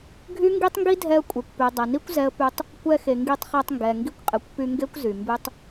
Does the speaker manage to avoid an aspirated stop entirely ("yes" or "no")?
yes